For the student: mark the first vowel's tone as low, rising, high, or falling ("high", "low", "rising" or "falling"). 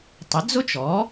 rising